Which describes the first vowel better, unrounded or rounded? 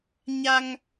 unrounded